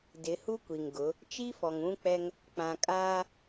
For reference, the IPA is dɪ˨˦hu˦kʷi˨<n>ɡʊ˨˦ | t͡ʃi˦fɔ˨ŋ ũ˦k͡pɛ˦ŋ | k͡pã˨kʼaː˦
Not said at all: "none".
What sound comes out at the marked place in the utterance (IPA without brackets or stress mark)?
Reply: ŋ